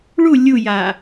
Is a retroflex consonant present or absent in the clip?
present